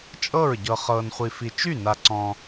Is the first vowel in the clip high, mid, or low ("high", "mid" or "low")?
mid